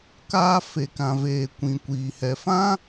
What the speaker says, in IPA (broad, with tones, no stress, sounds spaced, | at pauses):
k aː˧ f e˨ k ã˨ v eː˨ kʷ ĩ˨ kʷ iː˨ h ɛ˨ f ã˦